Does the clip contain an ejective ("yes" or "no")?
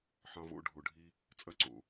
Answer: yes